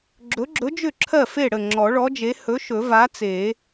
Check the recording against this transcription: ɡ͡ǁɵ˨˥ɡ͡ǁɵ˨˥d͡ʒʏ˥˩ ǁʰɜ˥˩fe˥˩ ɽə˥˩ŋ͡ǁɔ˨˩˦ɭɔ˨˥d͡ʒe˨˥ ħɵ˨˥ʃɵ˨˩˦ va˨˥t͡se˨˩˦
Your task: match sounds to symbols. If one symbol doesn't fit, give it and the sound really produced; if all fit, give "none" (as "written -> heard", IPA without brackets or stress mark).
ħ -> h